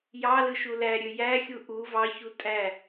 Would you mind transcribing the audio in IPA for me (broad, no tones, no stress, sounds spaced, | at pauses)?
j ɑ l ɯ ʃ u l æ ɾʲ ø j æ xʲ u ʔ u v ɑ ç u tʼ æ